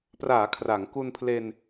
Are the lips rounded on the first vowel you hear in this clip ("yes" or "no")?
no